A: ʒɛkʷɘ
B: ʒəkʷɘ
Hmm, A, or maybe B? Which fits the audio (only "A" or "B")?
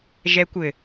A